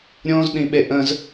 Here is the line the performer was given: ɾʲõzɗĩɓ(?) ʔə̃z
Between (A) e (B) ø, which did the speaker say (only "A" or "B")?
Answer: A